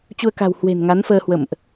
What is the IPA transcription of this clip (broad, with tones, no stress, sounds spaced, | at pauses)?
t͡ɕ u˧ ə̯ k a̤˨˩ w h w e̤˨˩ n ŋ a˨˦ n f əː˧ h w ə̰˧˨ m ʔ